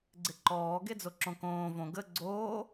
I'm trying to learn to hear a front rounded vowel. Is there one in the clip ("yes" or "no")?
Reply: no